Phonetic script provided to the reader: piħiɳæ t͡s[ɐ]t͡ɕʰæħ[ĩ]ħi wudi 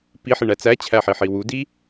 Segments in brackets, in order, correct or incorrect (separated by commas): incorrect, incorrect